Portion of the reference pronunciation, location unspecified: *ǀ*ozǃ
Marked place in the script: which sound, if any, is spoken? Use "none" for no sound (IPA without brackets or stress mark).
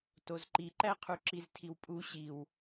t